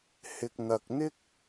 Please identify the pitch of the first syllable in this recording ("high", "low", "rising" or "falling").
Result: low